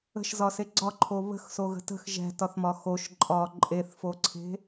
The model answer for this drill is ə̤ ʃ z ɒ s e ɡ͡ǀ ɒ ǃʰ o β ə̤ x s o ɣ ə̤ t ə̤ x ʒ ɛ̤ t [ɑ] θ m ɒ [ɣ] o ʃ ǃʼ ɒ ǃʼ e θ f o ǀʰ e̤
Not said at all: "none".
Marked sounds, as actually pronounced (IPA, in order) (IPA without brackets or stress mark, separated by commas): ɒ, x